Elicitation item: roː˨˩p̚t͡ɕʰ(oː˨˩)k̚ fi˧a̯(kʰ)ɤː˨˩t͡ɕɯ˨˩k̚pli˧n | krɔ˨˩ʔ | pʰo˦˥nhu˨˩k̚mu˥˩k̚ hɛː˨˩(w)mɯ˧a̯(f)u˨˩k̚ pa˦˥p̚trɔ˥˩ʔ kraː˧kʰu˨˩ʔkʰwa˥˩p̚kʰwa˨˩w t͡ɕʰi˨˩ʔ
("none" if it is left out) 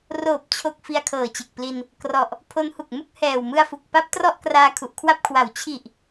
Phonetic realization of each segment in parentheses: o˨˩, kʰ, w, f

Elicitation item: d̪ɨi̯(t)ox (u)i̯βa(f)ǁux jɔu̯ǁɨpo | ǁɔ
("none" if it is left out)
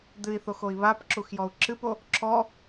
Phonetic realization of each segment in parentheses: θ, o, p

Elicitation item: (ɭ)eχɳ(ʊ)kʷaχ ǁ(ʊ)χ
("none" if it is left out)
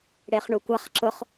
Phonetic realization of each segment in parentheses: ɽ, u, ʊ

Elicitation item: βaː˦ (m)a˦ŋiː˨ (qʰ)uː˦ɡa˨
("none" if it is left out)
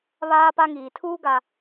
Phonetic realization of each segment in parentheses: p, tʰ

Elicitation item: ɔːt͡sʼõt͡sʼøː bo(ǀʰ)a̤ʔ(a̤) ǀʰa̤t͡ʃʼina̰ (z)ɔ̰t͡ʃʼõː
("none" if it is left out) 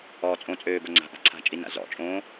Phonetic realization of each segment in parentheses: ŋ͡ǀ, a̤, z

